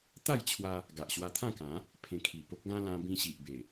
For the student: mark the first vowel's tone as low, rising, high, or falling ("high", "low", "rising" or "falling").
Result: falling